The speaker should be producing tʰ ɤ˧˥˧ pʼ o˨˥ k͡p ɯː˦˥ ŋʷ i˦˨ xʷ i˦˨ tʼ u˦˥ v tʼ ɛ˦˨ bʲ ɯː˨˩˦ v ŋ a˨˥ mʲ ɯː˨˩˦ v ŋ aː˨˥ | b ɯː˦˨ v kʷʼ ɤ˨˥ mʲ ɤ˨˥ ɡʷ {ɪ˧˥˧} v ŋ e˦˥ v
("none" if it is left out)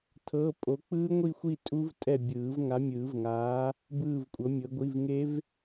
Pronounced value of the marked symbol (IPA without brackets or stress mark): i˧˥˧